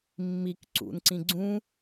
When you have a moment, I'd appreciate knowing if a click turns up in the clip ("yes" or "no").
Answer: yes